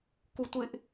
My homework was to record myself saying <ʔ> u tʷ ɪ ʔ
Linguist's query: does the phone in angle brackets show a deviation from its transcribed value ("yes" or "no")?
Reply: yes